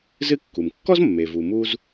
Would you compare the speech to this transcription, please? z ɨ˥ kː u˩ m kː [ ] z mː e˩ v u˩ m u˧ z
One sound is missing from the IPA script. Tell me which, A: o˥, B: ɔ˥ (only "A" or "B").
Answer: B